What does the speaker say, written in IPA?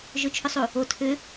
ʒ ɵ t͡ʃʰ ɵ sˤ u | o tʰ ʏ

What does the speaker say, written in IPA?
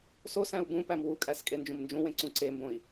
s o s æ̃ u̯ b ũ p æ m w u kʼ æ s kʼ e n d͡ʒ ũ m n d͡ʒ ũ w ẽ ǀ ũ ǀ e m b õ i̯

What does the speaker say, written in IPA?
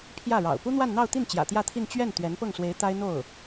pʰ j ä˥˩ ɻ ɑ̰˨˩ ʊ̯ p u˥ n̪ w a˥˧ n n̪ ɑ˥˧ ʊ̯ t̪ i˥˩ n t͡ɕ j ä̰˨˩ t̪ j ä˥˧ t̪ʰ i˥˧ n t͡ɕ ɥ ɛ˥˩ n t̪ ɥ ɛ˧˥ n p ɤ˥˩ ŋ s w e˧˥ ɪ̯ t̪ a˥ ɪ̯ n̪ o˥˩ ʊ̯

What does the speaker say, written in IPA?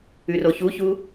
ʉ r o ç u ç u

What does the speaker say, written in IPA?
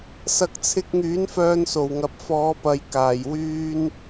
s ɐ˨ k̚ t͡sʰ ɪ˧ k̚ ŋ yː˨˥ n f œː˧ n s o˨˩ w ŋ ɐ˨˥ p̚ f ɔː˨˧ p ɐ˨ j k aː˨˩ j w yː˧ n

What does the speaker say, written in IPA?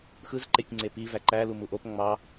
x ɯ z ǃ e tʲ ŋ͡ǀ e p i v æ ǃ æ l u m u ʔ o p ŋ͡m ɑ

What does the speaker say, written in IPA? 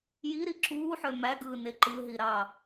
j i ɾ i ǁ uː ħ ø m æ ɡ ɯː n e ǃ ɯ ɦ i ɾ ɑ

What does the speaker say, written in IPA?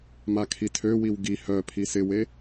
m a kʰ i tʰ ø w i w ɡ i h œ pʰ i s ɪ w e

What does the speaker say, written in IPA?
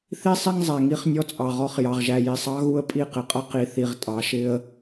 θ i˦ sˤ ɪ˦ ŋ zˤ æ˨ ŋ i˦ χ nʲ ɔ˦ t͡sʼ ɑ˨ ʁ ɔ˦ χ j ɑ˨ ʁ ʒ æ˨ j i˨ sˤ ɑ˦ ɣ u˦ ə̯ pʼ i˦˨ q ɪ˨ qʼ ʌ˦ q i˨ θ i˨ ʁ tʼ ɑ˨˦ ʃ ɪ˦ ə̯

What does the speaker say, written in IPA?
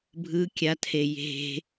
bʱ ɯ kʲ a tʰ e j e̤

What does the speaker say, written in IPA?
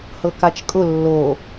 h ɤ k a t͡ʃ kʼ ʊ lː o

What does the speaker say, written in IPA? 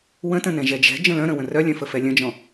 w ə̃ t ə̃ n ɛ̃ ʒ ɛ d͡ʒ ɛ̤ d͡ʒ ə̃ l œ̃ ɾ ə̃ w ə̃ r œ lʲ œ̃ f ə f ɛ lʲ ə̃ d͡ʒ ɔ̃

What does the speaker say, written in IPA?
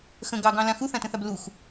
x ə̃ ɡ ɑ ɡ ɑ̃ l ã x u θ ã t ə̃ θ a b l u x

